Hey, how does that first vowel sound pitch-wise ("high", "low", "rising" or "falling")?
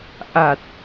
low